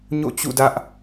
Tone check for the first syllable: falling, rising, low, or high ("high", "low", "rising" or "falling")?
falling